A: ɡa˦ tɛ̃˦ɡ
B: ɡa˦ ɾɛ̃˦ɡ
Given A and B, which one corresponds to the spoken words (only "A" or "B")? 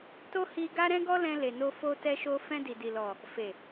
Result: B